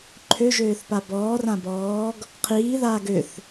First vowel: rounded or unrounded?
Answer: rounded